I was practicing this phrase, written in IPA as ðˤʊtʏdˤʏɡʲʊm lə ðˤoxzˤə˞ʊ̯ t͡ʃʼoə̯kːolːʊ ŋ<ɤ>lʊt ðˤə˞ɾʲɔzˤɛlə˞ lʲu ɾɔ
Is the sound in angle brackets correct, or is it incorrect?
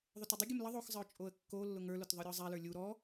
incorrect: ə˞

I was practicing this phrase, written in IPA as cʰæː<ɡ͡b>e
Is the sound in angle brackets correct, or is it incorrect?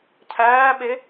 incorrect: ɓ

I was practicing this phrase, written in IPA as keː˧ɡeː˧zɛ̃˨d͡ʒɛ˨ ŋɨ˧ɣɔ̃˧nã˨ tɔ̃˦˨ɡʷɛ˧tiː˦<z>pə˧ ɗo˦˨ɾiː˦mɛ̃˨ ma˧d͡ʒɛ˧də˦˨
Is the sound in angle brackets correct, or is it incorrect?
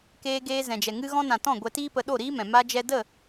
incorrect: none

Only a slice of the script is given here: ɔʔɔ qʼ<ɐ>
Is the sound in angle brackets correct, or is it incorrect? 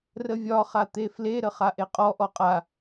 incorrect: a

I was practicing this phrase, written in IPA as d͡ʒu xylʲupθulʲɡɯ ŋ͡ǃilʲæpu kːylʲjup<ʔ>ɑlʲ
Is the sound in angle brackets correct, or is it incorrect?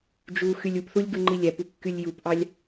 correct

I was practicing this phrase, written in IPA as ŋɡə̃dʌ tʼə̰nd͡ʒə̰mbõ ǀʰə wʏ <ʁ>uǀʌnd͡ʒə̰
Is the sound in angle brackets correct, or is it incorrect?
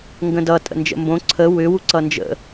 incorrect: w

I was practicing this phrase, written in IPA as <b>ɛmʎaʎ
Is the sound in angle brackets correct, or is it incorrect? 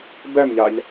correct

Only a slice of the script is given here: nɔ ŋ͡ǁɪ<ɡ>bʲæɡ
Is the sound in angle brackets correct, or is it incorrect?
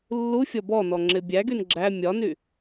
incorrect: none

